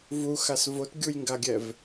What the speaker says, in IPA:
v u x a s v o t ɡʲ u j ŋ ɡ a ɡʲ ɛ v

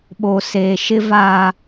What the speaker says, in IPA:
ɓ oː˨ s eː˨ ʃ ɪ˦ v aː˦

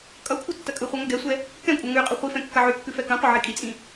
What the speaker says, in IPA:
kʼ ʌ kʷʰ ʌ tː ɐ kʼ ɯ χʷ ʌ ŋ ʌ ɡ ɛ sʷ ɛ | k ɛ̃ kʷʼ ɐ ŋ ʉ qʼ ɐ χʷ i f ɛ̃ kː ɐ ʕ ʉ kː ʉ f ɛ k ɐ̃ qʷ ɐ ʕ i kʼ i t͡sʼ ĩ

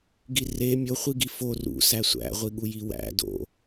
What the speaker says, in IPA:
ɡ i r e mʲ o χʷ i ɡ i f o r ṵ s æ sʷ æ̰ ʁʷ i ɠ u j i w æ̰ d o̰

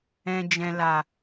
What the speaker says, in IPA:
ɛ̃˨ d͡ʒ ɛ̃˨ l a˨

